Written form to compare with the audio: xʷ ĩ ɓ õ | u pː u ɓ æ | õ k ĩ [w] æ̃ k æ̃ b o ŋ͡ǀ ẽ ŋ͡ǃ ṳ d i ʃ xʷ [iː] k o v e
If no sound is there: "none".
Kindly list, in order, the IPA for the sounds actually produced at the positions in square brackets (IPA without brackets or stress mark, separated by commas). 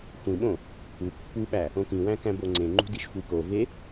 w, i